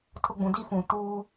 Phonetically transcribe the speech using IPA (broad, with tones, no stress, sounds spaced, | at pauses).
tʰ ʊ˦ ɡ͡b ũ˨ d i˦ f ũ˨ t uː˦